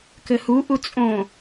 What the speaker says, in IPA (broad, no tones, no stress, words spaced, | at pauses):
kɘhuʔu t͡sʼõ